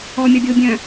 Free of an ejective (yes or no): yes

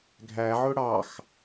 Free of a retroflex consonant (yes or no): no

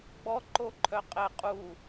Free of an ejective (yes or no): no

